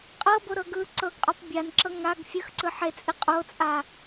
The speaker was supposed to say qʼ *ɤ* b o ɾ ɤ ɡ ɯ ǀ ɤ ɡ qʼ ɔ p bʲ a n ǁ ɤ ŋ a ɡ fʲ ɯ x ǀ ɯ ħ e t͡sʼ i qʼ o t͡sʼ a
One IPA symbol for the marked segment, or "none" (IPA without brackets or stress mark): ɤ